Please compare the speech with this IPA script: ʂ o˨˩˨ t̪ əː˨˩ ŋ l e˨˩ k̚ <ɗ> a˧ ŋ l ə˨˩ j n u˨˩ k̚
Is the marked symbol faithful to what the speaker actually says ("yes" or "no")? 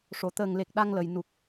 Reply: yes